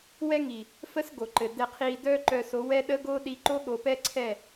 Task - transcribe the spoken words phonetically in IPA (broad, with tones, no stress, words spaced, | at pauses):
wɛ˦ŋi˨ | fə˦sɡo˨ǃɘ˨ dɛ˨qʰi˨ dœ˦ǃœ˨ so˨˦wɛ˦ɗə˦ ɡo˦ ɗi˦ ǃo˦ɠo˨pɛ˦ǀʰɛ˦˨